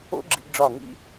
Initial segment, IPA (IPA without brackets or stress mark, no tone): o̰